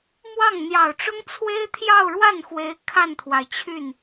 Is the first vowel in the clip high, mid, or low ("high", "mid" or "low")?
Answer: low